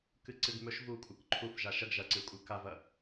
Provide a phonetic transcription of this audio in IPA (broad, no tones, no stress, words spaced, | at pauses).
kɨǀɨɡmɵʃ vu kʷʼɨkǃʰuf ʒaʃɐɡ ʒɐǀɨkʷʼɨ kavɐ